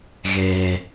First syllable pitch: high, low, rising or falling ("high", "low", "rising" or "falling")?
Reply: low